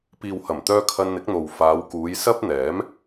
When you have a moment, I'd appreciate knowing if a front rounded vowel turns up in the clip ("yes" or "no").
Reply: yes